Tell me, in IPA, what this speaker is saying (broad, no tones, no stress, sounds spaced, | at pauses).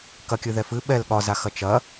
k ɐ kʲ ɨ ð ɛ f ɨ ɓ ɛ l ɠ ɒ z a x ɐ t͡ʃ ɐ